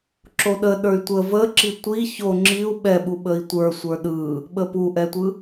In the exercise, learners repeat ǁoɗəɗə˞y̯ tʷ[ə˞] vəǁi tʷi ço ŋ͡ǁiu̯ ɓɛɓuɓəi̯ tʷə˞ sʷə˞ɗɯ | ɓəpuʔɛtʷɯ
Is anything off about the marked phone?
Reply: yes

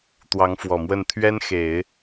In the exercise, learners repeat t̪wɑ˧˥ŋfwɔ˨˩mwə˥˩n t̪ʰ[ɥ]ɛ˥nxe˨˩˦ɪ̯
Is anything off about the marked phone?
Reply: no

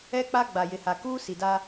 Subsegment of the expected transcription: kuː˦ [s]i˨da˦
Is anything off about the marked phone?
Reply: no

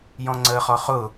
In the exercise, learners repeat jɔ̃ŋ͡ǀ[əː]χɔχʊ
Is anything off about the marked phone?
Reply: no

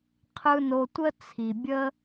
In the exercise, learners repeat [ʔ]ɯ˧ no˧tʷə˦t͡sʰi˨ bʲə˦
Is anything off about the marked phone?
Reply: yes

